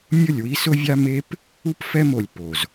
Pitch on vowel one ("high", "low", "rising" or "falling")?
falling